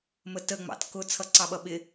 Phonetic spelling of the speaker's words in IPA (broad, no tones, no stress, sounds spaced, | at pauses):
m ə t ə ŋ͡m ɑ̰ t k ʊ t͡sʰ ʌ ǀ ɑ ɓ ʌ ɓ ɪ